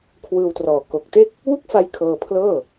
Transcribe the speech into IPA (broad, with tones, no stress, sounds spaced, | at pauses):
kʰ w ɯː˧ w t r ɔː˨˩ k o˨˩ k̚ t e˥˩ k̚ | w u˥˩ k̚ f a˦˥ j kʰ ɤː˧ pʰ l ɤː˥˩